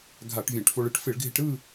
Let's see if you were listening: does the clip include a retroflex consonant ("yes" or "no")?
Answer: yes